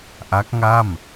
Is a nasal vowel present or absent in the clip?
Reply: absent